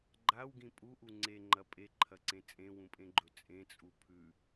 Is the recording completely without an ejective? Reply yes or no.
no